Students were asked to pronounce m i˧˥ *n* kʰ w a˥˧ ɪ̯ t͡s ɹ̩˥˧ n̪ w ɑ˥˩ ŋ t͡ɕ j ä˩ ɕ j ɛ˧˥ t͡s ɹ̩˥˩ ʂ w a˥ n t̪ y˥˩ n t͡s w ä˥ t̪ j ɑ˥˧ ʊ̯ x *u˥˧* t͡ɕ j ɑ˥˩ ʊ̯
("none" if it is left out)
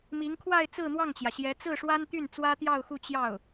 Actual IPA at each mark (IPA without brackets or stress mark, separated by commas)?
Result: ŋ, u˥˧